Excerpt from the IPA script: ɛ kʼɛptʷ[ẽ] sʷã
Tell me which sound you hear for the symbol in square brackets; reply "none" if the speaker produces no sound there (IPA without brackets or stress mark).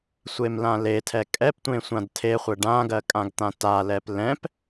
ẽ